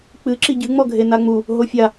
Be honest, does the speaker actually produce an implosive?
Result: no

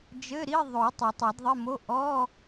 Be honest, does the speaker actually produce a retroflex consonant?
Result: no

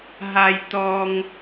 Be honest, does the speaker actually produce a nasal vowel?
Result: no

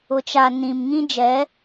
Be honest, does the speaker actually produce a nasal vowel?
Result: yes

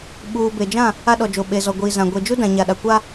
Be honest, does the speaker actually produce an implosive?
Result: yes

